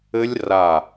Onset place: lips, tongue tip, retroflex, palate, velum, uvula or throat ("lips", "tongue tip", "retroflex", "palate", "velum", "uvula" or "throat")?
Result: tongue tip